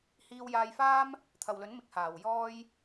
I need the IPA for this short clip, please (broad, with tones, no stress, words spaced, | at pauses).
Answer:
hiː˧wjaː˧jfaː˥m | t̪ʰɐ˨wlɵ˨˥nmɪ˨˥k̚ haː˨˩wjɔː˧j